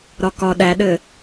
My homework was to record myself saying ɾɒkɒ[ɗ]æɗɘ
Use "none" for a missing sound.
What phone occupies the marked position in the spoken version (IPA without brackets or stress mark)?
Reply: ɗ